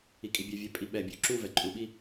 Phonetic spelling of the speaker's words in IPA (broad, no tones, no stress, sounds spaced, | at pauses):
i kʼ i bʲ ø vʲ ø pʼ i ɓ ɛ bʲ ø ǁ u v ɛ ǃʼ u ɓ i